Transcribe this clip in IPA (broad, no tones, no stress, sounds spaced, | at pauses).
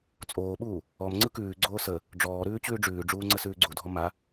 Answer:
t͡sʼ oː ɓ uː | ɔ m ŋ͡ǀ ɯ k ʉː ɡ͡ǀ oː s ə | ɖ͡ʐ ɔː ɾ ʉː t͡ɕ ʉː ɖ͡ʐ ʉː ɖ͡ʐ uː ŋ͡ǀ ə s ʉː ɡ͡ǀ u dʱ ɔ m a